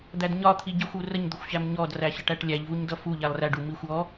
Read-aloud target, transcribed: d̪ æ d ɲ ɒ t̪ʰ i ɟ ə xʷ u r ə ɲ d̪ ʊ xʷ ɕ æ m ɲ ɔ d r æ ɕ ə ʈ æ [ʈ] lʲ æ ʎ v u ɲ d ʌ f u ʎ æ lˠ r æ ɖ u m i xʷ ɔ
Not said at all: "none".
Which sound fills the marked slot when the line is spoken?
ʈ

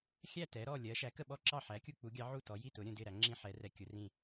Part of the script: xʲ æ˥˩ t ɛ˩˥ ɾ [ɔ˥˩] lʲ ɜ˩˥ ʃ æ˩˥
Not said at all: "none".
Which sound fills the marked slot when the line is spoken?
ɔ˥˩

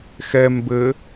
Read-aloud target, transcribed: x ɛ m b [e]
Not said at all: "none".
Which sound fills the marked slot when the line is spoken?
ɘ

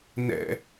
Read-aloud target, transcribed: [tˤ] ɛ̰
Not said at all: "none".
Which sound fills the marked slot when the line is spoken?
n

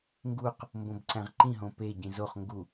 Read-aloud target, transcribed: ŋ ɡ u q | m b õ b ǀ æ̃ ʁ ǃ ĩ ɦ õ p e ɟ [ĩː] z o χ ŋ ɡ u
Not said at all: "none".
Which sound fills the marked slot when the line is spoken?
ĩ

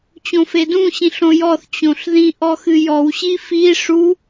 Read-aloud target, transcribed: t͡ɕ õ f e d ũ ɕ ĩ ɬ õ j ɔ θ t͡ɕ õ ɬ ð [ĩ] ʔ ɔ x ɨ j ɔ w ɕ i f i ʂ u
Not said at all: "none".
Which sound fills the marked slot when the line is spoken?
ĩ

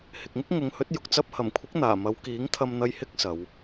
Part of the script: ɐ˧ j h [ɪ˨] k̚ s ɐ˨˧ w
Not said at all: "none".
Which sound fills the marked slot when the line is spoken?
ɪ˧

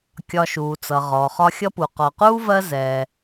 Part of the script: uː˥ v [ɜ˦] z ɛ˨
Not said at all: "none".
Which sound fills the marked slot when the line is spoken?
ɜ˦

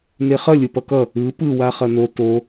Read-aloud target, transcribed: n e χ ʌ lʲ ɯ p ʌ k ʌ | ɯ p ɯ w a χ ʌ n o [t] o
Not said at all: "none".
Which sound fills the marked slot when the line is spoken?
t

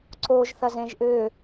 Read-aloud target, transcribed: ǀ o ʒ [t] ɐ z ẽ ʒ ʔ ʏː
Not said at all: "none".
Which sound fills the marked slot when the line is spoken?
θ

